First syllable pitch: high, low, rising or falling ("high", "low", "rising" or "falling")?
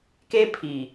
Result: high